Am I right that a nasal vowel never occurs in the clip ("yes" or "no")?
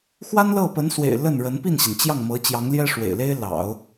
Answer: yes